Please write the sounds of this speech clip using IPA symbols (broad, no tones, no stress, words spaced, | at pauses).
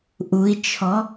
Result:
ʔui̯t͡ʃʰɔ